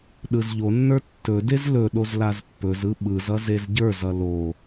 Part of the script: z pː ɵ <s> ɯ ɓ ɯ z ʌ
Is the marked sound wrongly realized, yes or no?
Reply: yes